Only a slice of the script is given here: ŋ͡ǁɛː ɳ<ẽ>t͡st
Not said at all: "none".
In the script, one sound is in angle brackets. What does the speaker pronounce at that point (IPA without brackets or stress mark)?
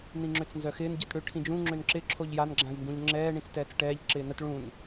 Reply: ĩ